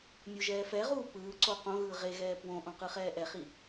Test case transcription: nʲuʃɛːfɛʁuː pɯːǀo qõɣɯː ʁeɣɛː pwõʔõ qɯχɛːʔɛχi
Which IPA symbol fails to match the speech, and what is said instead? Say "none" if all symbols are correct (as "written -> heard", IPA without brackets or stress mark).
ʃ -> ʒ